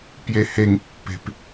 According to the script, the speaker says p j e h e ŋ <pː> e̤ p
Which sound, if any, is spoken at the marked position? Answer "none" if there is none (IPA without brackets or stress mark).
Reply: pː